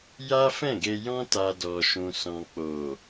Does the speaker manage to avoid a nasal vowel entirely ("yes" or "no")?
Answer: no